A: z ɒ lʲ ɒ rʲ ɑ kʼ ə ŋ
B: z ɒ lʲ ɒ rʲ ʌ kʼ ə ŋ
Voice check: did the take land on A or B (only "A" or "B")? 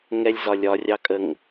A